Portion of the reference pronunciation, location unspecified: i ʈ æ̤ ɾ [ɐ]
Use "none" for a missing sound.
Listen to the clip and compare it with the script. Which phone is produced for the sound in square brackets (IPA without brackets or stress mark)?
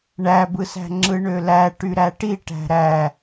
æ